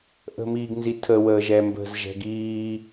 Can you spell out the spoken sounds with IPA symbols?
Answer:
ʔə̤miːɡnzitʰə wəːʒɛmbə̤z ʒɛ̤ɡiː

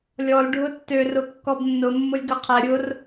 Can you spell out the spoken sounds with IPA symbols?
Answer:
lʲɔl ɖʱʊtːø rʊkːɔbnːʊ mːʊlʲɡɐqʰɛ ɾʲʊr

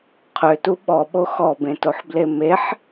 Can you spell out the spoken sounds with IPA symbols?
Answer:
qʰøtu ɓɔɓo xɔbẽtoħble meħ

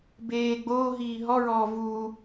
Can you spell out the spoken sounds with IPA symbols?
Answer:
beː ɡ͡boː ɦiːɦɔɹɔː vuː

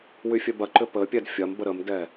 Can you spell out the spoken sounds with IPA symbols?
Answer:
wyfʲœbɐǃʏ pə pʲɛdfʲɐmbə ɾəmdɛ

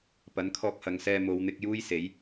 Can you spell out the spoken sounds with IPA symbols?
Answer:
pɐ˨˥nkʰɔː˧k̚hɐ˨˧ŋsɛː˧ mo˨˧wn̪ɪ˧k̚ juː˥jse˨˥j

